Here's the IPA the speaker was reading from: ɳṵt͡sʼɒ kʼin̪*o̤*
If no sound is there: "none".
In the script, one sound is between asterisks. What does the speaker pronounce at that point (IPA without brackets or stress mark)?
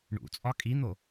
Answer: o